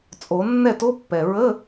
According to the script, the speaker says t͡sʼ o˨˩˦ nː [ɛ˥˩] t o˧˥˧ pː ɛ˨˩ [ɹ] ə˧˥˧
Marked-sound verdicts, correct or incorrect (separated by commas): correct, correct